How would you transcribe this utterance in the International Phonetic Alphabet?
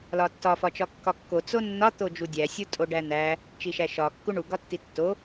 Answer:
l ɒ tː ɒ f ɒ t͡ʃ ɒ kː ɒ kː o t͡s o nː ɒ t̪ o d͡ʒ u dʲ æ sʲ u tʼ o ɖ æ n̪ æ | t͡ʃ i ʃ æ ʃ ɒ kː u ɳ u ɡ ɒ tː i tː o

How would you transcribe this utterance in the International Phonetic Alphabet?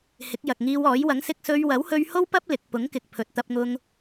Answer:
h ɪ˨˥ k̚ j ɐ˨ k̚ ŋ iː˧ w ɔː˨˥ j w ɐ˨˥ ŋ s ɪ˧ k̚ s ɵ˧ ɥ w ɐ˨˥ w h ɵ˧ ɥ h o˥ w p ɐ˥ p̚ l ɪ˨ k̚ p ʊ˨˥ ŋ k ɪ˨ k̚ pʰ ɵ˨ t̚ t̪ ɐ˧ p̚ ŋ ʊ˧ ŋ

